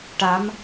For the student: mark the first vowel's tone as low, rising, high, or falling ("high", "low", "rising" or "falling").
rising